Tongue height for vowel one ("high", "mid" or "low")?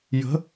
mid